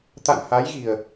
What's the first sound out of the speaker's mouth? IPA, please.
t̪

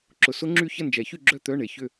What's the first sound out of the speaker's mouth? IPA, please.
ǁ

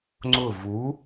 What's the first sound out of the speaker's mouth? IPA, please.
ŋ͡ǀ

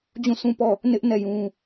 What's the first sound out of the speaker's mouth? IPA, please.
d͡ʑ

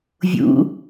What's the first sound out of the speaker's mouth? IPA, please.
vʲ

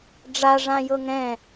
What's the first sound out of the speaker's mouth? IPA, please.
ɖ͡ʐ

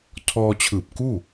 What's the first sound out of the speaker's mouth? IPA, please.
tʰ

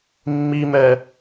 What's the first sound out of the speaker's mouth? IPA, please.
mː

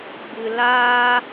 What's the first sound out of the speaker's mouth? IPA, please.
ɡ͡b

